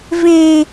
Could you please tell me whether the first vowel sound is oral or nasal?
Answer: nasal